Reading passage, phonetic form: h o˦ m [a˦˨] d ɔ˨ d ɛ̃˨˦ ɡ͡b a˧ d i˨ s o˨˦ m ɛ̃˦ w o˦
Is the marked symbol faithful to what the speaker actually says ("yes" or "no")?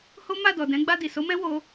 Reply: yes